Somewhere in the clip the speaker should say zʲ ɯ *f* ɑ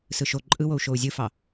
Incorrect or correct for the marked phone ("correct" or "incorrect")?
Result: correct